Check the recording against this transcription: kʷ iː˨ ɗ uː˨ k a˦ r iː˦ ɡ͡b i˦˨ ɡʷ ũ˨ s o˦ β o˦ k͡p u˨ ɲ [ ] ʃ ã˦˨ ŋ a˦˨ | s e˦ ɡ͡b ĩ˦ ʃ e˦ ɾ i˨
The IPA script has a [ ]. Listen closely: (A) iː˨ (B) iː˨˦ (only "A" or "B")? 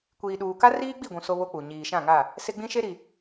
A